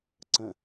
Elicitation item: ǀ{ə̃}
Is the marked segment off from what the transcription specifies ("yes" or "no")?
no